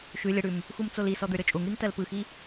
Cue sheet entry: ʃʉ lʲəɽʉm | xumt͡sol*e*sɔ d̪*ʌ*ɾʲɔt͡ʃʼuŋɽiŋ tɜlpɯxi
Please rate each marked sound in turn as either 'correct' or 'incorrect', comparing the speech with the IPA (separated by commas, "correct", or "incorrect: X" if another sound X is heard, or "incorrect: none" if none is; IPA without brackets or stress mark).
incorrect: i, incorrect: ə˞